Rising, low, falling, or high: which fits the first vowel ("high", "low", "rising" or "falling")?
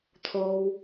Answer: high